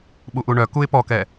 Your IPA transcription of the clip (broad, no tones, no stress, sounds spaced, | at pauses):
ɓ u ʔ u ɳ œ k u ɪ̯ p ɔ k ɛ